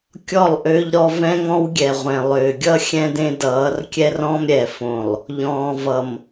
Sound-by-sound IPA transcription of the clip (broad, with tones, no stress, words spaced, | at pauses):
kʲɔ˦˨lˠʔø˦ʎɾɔ˦ vɛ̃˦ŋɔ̃˦wɡʲɛ˨ ʁʷɛ̃˨lˠʏː˨ ɡʲʌ˦ xʲɛ̃˦dẽ˦dʌː˨˦r kʲɛ˦rɔ̃˦m ɾʲɛ˨fõ˨lˠ | ʎɔ̃ː˨vʌ˨m